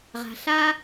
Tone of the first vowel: low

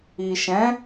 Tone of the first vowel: low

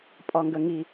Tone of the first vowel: low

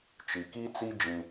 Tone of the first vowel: low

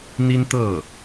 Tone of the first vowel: high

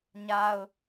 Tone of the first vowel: high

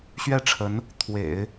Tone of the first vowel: falling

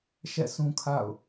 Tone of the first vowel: falling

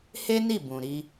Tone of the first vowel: high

